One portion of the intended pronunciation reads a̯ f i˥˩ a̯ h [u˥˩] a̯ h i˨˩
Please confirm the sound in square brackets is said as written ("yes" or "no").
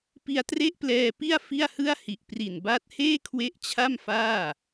no